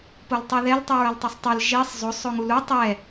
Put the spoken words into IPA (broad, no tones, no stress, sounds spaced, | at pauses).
p o l tˤ i ð ɛ l tˤ ɯ ɹ ʌ l tˤ ɯ sˤ tˤ o l ʒ i sˤ zˤ o sˤ o ŋ u l u tˤ ɛ